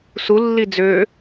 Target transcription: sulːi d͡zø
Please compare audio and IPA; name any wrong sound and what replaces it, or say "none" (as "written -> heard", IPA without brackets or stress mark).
none